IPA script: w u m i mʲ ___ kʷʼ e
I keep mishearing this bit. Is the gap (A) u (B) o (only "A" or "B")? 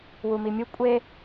A